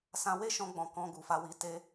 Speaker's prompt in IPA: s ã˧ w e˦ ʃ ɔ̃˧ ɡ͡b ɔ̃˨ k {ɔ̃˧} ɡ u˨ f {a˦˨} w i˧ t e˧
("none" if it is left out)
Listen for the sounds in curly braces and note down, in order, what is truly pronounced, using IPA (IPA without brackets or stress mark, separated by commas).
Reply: ɔ̃˧, a˧